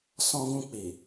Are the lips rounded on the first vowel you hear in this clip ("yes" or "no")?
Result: yes